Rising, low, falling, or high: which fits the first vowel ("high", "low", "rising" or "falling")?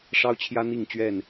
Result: high